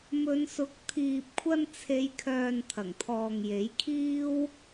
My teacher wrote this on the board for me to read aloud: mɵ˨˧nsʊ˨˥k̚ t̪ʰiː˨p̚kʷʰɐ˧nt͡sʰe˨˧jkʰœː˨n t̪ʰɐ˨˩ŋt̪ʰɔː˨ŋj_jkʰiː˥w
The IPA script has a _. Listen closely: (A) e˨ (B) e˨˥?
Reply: B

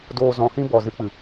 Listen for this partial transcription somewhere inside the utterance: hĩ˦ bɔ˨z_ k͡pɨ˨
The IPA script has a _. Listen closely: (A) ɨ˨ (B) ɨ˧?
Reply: B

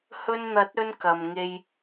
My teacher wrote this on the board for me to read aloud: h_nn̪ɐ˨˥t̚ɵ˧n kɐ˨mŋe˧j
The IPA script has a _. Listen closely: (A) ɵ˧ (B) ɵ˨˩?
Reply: A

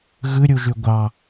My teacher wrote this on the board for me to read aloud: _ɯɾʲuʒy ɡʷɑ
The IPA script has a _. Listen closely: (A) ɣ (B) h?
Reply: A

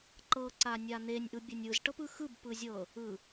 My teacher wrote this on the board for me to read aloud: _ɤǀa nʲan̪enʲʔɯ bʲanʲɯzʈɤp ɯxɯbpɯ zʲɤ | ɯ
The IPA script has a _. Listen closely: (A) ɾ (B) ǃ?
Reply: B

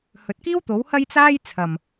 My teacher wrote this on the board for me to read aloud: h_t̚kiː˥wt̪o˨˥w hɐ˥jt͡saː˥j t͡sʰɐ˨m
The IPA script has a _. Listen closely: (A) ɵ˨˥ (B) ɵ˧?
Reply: A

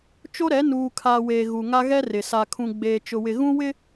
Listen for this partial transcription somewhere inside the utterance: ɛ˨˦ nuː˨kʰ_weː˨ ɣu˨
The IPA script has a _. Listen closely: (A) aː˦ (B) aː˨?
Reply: B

